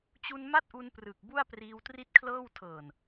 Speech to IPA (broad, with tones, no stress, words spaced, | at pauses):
t͡ɕu˧n ma˥˩t̚ʔu˧nprɯ˨˩k̚ bu˥˩a̯priː˧wtri˥˩t̚kʰlɤː˥˩w tʰɤː˨˩n